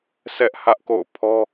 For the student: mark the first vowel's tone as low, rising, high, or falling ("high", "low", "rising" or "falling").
high